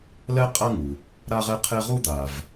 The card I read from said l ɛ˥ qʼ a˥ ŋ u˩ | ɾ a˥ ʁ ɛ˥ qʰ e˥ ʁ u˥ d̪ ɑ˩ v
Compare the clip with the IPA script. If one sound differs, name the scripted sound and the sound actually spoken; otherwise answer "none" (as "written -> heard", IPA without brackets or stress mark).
ɑ˩ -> a˩